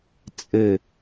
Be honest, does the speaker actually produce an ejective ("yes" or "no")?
yes